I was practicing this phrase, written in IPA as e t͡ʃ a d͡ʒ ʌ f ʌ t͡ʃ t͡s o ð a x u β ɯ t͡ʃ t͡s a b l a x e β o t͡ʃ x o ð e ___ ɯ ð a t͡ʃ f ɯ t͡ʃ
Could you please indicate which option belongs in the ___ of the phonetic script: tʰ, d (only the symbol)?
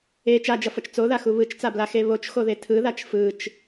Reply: tʰ